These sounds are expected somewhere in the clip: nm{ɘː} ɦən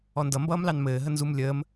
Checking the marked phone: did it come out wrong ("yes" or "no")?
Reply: no